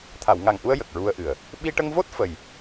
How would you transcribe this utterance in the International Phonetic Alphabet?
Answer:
t̪ʰa˨˩˨wŋa˨˩ŋʔu˧ə̯ jə˨˩k̚ɹu˧ə̯ʔɨ˨˩ə̯ | ɓi˧ʈə˧ŋvo˦˥t̚ fə˨˩j

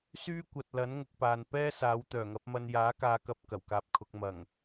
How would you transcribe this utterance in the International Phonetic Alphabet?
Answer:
syː˥kʷɐ˨t̚lɐ˨˥n ŋʊ˧k̚paː˨n pɛː˥ saː˨˥w t̪œː˨˩ŋɐ˨˥p̚mɐ˧n jaː˨˥kaː˨˧kɐ˨p̚ kɐ˨˩wkaː˧p̚kʰʊ˨˥k̚ mɐ˨˩ŋ

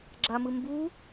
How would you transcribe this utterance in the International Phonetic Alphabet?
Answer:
ɡ͡ǁamɯ mbu

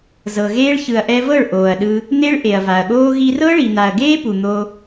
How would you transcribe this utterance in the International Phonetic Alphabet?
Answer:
zɤ˨ɣeː˦ɭ çɯ˨ɐ̯ʔɛ˧vɤ˦˨ɭ ʔoː˨ɐ̯ɗɯ˧ | n̪e˦ɭ ʔe˨ɐ̯va˨ɐ̯ɠoː˦ ɣi˧rɤ˦ɭi˨ n̪a˨ɐ̯ɡeː˦pu˨ n̪o˧

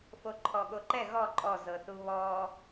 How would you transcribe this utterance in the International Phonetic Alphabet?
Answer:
foǃʰɔɠoǃɛ ɣɔ ǃʼɔ zɤθuβɔ

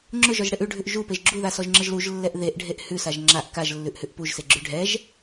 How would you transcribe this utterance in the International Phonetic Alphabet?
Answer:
ŋ͡ǁʊʒɔʒɽeʔ ʉɖʱʉʔ ʒupeʒ ɡ͡ǁuðasɔʒŋ͡ǁəʒ luʒlːɛʔ ðeʔɖʱeʔ hʉsaʒ ŋ͡ǁaʔ kaʒlːʉʔhʉʔ puʒseɡ͡ǁʉ ɖʱɛʒ

